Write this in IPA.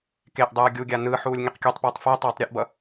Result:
k e ʔ dˤ ɯː ɡʲ u ɡʲ a n ɯː ħ uː lʲ ŋ i q kʲ u tˤ p uː tˤ f e tˤ uː tˤ ɾʲ ɯ ʔ b ʌ

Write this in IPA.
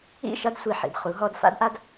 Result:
ḭ˦˨ ʃ ʌ˦ d sʷ i˨ ħ ḭ˨ d χ u˨˦ ɦ ɔ˦ d f a̰˦ d ʔ a˦ d

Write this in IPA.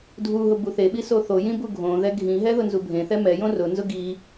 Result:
dʱ u ɦ ʊ b u θ e ɓ i s o θ o j ĩ b u ɡʱ õ ð ɛ ɡʱ ĩ ɦ ɛ ð ʊ n z u bʱ ẽ θ ɛ m ɛ j õ r ʊ n z ʊ ɡ i

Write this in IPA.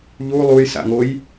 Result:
ʎ u lˠ u j s a̰ ŋ o j

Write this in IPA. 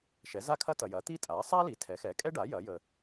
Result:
ʃ ɛ˩˥ z a˥ kʰ ɐ˥ t ɐ˨ j ɐ˩˥ t̪ i˥ tʼ a˩˥ sˤ a˥ l i˩˥ tʰ ɛ˩˥ x ɛ˩˥ kʼ ɛ˥ ɖ a˩˥ j ɐ˩˥ j ə˨

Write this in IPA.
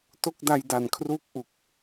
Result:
t o˥˩ k̚ d a˧ j d a˨˩ n kʰ r uː˦˥ k̚ ʔ u˨˩ k̚

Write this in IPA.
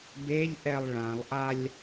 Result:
b e ʎ ʔ ɛ lˠ ɭ ã lˠ ʔ a lʲ

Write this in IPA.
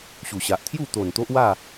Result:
ɕ u˨˩ ɕ a˨ ʔ t̪ʰ j u˥˧ t̪ o˨˩ n t̪ o˦ ʔ w a˥˧

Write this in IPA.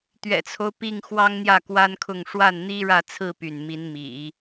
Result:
t̪ ɥ ɛ̰˨˩ t͡sʰ o˦ ʊ̯ p i˥˩ ŋ x w ɑ˥ ŋ n̪ j ä˥˩ k w a˥ n kʰ ʊ˥˧ ŋ ʂ w a˥˩ n n̪ i˥ ɻ ä˥˧ t͡sʰ ɹ̩˥˧ p y˥˩ n m i˧˥ n m ḭ˨˩˦

